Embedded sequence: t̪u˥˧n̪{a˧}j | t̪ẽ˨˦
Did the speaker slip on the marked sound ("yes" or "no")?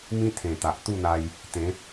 no